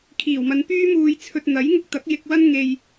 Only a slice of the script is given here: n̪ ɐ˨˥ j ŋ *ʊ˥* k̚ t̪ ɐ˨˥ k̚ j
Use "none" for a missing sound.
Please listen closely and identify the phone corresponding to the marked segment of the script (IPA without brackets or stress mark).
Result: ʊ˧